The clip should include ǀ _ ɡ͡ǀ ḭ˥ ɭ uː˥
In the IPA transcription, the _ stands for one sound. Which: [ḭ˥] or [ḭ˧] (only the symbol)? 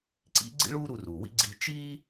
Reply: ḭ˥